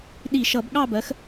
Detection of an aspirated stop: absent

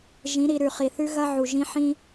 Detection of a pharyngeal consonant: present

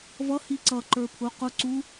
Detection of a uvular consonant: present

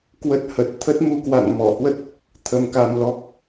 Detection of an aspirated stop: present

